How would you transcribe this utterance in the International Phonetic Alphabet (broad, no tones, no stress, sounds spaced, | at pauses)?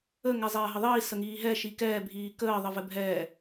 ə ŋ ɛ zˤ ɛː ɦ ə ðˤ iː s ə ŋ iː ɦ ɛ ʃ i k ɛː bʱ iː k əː ðˤ ɘ v ɘ bʱ ɛː